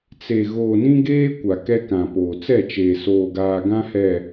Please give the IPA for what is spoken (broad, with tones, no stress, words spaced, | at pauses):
t͡se˨ ɣoː˨nĩ˦ɡeː˦ kʷa˨kɛ˦kã˨poː˨ t͡sɛ˦˨t͡ʃeː˨ soː˨ɡaː˨ ɡã˦hɛ˨